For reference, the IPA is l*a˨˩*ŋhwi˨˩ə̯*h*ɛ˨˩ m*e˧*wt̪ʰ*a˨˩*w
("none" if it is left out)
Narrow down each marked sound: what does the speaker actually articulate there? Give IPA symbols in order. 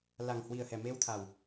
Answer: a˨˩, h, e˧, a˨˩

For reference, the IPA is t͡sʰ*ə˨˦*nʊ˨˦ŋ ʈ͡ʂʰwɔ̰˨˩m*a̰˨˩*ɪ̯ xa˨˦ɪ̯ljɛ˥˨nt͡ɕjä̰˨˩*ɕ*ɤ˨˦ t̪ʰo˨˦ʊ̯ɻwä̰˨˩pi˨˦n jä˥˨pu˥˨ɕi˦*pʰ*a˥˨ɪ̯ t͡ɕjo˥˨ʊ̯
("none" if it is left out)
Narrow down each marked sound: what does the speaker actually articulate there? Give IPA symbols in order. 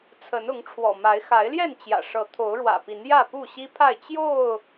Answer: ə˨˦, a˨˦, ʂ, pʰ

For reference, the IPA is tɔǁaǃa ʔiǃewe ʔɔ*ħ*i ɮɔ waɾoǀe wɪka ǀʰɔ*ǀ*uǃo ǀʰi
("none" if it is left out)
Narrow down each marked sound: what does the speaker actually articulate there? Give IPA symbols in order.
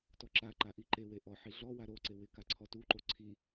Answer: ħ, t

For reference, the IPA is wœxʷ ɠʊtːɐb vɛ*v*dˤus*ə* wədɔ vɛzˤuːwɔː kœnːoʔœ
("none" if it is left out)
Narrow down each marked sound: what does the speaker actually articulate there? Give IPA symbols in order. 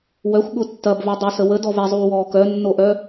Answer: none, ə

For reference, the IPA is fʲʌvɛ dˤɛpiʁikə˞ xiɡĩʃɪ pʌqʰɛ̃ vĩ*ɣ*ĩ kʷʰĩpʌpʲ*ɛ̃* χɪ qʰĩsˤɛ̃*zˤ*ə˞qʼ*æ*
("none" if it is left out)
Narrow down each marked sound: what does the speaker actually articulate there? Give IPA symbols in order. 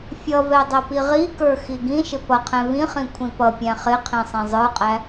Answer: χ, æ̃, zˤ, æ

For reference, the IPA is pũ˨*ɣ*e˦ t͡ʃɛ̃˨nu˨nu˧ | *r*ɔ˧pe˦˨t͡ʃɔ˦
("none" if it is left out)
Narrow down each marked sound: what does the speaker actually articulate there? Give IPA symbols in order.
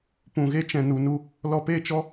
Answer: ɣ, l

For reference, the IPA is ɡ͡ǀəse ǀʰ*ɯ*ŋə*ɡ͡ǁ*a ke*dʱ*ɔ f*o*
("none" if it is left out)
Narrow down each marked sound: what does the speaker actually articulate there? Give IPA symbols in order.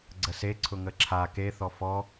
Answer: ʊ, ǁʰ, θ, ɔ

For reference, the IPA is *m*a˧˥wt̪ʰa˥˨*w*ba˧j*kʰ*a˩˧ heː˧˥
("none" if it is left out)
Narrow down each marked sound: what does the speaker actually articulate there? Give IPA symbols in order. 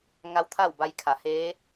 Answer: ŋ, w, kʰ

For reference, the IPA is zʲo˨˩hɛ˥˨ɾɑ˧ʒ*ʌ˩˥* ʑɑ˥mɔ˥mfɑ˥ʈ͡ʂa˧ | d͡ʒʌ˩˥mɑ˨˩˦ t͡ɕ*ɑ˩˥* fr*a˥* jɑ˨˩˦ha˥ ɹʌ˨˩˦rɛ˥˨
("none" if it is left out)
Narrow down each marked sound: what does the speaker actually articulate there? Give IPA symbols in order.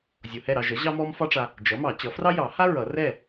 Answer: ʌ˩˥, ʌ˩˥, ɑ˥

